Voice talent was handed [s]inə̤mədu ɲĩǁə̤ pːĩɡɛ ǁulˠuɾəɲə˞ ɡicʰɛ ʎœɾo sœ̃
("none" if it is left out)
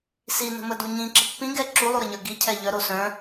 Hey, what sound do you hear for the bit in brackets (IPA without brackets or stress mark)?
s